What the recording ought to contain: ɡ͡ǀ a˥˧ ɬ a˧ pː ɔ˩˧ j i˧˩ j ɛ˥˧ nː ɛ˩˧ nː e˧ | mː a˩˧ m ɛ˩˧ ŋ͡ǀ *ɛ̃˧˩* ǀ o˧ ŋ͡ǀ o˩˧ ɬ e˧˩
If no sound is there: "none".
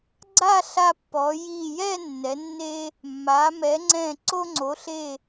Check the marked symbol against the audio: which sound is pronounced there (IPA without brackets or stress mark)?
ɛ̃˧˩